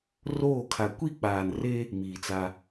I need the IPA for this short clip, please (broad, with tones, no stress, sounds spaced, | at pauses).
r oː˦˨ kʰ a˨ kʷ i˦˨ k͡p aː˨ n r e˦ | m iː˨ t͡s a˦